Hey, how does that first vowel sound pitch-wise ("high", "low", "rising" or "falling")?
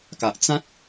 low